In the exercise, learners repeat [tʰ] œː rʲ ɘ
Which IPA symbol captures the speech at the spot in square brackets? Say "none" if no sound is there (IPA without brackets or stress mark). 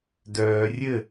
d